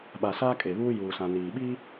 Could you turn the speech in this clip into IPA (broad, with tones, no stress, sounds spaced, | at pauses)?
ɓ a˨ s aː˦ kʼ e˨ β uː˦ j uː˨ s ã˨ n iː˨ ɓ iː˦